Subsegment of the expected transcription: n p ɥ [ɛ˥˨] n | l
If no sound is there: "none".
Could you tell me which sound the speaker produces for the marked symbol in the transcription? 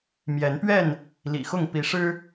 ɛ˥˨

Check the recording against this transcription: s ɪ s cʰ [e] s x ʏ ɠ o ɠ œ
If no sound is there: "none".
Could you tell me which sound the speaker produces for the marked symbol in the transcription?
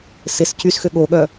y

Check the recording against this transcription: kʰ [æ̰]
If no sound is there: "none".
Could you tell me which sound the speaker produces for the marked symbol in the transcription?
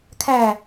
æ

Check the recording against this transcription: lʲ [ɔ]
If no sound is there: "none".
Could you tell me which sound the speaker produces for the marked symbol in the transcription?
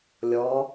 ɔ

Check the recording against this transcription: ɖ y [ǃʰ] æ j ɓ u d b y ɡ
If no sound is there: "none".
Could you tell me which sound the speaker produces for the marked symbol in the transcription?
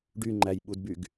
ŋ͡ǃ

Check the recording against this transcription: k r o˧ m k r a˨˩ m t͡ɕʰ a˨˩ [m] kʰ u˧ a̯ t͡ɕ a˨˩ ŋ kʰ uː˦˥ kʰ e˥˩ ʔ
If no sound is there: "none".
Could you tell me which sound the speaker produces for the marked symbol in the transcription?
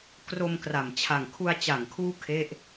ŋ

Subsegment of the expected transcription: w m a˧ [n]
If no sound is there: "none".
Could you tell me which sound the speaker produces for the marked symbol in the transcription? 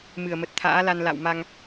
ŋ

